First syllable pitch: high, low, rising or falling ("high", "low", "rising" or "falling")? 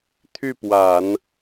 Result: falling